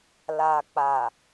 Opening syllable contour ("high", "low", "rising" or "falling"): low